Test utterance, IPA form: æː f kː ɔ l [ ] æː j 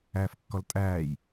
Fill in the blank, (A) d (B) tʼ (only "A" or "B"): B